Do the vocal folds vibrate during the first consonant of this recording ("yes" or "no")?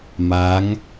yes